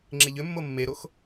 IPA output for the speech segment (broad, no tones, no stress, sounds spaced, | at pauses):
ŋ͡ǁ e ʎ ʏ mː o mː e ɾ o x